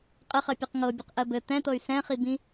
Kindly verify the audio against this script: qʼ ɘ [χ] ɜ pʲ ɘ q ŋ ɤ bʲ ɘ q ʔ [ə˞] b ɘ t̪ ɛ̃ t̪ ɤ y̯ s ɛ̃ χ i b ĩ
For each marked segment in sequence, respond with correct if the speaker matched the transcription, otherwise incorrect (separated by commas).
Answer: correct, incorrect